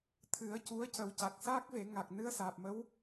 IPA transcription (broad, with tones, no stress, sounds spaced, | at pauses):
t̪ʰ ɨ˨˩˦ ə̯ c u˧˥ ə̯ c ə˨˩˦ w c a˨˩ k̚ s a˦˥ k̚ v e˨˩˦ ŋ a˨˩ k̚ n ɨ˧˥ ə̯ s aː˨˩ p̚ m ə˧˥ w